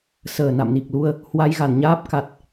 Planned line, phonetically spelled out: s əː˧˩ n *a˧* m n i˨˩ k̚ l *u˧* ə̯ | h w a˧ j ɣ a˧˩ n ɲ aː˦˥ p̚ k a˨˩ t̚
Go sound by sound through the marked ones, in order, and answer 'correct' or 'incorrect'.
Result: incorrect: a̰˧˨, correct

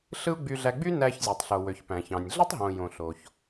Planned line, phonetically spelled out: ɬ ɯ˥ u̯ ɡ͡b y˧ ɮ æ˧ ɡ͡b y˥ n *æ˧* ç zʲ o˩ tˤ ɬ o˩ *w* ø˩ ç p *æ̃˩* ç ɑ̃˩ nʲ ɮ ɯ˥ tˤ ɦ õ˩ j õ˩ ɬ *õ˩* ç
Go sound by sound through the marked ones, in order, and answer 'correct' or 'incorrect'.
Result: correct, correct, correct, incorrect: o˩

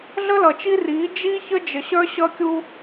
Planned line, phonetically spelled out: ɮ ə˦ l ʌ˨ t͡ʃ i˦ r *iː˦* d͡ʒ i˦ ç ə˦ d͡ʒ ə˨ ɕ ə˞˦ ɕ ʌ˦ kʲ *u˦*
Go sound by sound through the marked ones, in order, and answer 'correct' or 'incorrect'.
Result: incorrect: iː˨˦, correct

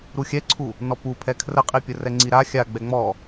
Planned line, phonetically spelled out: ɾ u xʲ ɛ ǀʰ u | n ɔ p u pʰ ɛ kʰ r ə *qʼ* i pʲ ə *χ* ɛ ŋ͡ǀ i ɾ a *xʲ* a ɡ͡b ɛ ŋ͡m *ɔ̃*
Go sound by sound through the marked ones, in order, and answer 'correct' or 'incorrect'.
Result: correct, incorrect: r, correct, incorrect: ɔ

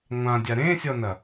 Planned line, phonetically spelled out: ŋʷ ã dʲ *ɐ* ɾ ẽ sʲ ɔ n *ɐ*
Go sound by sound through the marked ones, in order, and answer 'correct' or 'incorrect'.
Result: incorrect: a, correct

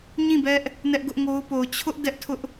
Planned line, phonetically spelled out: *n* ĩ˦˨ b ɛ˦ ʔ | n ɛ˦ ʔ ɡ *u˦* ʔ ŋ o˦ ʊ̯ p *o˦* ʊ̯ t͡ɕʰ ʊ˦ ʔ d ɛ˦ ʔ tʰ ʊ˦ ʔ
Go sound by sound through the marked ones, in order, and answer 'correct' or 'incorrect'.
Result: incorrect: ɲ, incorrect: ʊ˦, incorrect: o˨

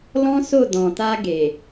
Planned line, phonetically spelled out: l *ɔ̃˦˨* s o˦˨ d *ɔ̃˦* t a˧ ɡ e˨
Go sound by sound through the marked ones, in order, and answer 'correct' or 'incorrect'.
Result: incorrect: ɔ̃˦, incorrect: ɔ̃˨

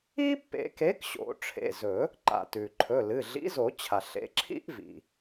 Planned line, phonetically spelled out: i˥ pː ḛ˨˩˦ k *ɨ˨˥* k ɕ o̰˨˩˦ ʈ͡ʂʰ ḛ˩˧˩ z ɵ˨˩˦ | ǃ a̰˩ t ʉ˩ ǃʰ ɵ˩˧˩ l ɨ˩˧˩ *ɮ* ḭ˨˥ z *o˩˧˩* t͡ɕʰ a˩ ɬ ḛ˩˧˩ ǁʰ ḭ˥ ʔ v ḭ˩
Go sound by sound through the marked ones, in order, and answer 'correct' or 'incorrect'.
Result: incorrect: e˨˥, correct, incorrect: o˨˩˦

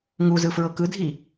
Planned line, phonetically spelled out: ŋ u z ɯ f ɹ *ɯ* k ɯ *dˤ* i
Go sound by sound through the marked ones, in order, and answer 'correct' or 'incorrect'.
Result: incorrect: ɤ, incorrect: dʱ

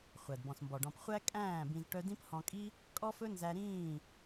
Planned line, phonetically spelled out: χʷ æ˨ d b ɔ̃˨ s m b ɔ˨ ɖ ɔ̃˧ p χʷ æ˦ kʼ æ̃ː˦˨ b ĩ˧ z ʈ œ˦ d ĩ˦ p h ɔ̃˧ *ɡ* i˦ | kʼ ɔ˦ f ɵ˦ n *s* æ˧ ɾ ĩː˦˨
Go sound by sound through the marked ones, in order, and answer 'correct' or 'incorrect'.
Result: incorrect: kʼ, incorrect: z

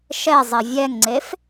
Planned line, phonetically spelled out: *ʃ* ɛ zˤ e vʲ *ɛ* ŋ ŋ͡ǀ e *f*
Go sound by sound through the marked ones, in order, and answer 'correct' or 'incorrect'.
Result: correct, correct, correct

